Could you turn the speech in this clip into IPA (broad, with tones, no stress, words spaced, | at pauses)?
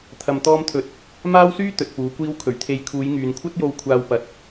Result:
t̪ʰɐ˧mt̪ɔː˥mt̪ʰɵ˧t̚ | maː˥wsyː˥ t̪ɵ˨t̚puː˨˥kʷiː˥w kʰɵ˨˩ɥt̪ʰe˨˧j kʰuː˨˧jŋyː˨nkʷʰɐ˥t̚jo˧w kʷʰaː˧wpɐ˨˥t̚